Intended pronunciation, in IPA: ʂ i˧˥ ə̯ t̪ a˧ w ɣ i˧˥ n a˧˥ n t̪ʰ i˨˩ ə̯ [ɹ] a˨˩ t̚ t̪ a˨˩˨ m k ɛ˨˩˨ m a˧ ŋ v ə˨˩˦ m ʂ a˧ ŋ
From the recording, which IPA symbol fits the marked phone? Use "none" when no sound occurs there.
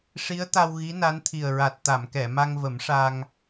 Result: ɹ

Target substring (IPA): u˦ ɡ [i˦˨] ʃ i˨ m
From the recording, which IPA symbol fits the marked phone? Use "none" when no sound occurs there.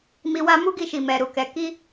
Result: i˦˨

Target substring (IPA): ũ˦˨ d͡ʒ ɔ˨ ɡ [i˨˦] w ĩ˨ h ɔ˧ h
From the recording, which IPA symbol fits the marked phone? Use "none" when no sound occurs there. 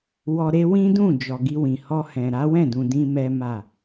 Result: i˧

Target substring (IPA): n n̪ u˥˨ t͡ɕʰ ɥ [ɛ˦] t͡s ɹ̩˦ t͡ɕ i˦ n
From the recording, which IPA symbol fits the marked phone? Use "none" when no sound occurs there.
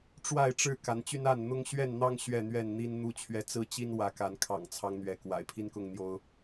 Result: ɛ˦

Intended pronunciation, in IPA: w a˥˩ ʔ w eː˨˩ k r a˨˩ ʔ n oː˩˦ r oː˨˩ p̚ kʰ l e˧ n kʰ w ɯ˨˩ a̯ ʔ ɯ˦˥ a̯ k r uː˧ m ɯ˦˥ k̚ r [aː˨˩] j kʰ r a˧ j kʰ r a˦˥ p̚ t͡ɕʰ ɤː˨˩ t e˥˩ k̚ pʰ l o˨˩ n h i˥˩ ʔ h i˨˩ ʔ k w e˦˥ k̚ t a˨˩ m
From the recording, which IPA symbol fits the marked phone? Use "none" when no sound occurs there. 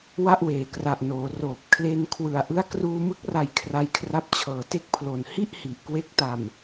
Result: a˨˩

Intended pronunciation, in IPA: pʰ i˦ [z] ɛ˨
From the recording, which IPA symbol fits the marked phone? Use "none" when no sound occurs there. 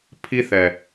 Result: θ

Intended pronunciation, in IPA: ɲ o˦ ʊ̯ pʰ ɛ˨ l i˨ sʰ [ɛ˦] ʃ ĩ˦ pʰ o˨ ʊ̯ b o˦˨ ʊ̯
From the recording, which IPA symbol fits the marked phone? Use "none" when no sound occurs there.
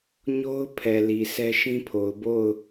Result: ɛ˦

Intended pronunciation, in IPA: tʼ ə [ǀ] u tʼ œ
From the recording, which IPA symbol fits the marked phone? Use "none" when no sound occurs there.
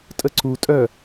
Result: ǀ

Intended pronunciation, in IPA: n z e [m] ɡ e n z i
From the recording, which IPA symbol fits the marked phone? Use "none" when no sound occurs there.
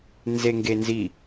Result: ŋ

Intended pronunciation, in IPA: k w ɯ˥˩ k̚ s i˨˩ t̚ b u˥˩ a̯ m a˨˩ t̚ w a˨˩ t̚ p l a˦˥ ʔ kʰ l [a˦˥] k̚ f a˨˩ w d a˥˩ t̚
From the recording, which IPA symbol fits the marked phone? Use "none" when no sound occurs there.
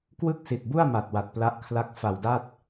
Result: a˦˥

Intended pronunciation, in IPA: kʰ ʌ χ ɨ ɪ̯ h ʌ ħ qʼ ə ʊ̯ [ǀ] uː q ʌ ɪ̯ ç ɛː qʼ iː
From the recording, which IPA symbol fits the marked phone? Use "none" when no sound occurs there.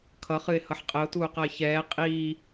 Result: t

